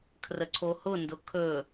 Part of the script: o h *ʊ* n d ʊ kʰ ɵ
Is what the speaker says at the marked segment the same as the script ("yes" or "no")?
yes